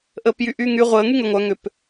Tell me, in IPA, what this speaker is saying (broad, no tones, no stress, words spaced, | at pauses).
ʔəːpjyʔyːŋy ʁʷəː ŋyŋʏ ŋʷœ ŋʏp